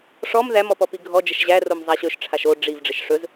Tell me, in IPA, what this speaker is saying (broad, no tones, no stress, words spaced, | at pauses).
ʂɔm ðæmɔpɔpi ɡʱɔd͡ʒəʃ ʑæ romzˤaɕɵʃ ʈ͡ʂʰaʃo ɖ͡ʐiv ɖ͡ʐɘʃʂɵz